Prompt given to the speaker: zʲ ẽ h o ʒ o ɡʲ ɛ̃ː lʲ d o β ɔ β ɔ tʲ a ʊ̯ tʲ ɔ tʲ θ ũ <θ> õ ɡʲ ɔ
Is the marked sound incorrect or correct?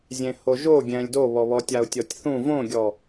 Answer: incorrect